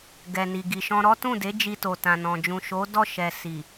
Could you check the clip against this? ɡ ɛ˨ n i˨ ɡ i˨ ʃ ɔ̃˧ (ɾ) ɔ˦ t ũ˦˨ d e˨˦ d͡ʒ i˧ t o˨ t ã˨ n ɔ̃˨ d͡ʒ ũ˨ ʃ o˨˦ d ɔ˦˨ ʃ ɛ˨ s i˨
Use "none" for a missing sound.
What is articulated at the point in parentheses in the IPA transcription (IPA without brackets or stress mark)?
ɾ